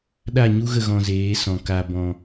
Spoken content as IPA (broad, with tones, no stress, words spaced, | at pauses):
ɗa˦˨ɲu˦ɣə˦˨ ɣɔ̃˧zeː˨˦sɔ̃˨ ka˨bɔ̃˨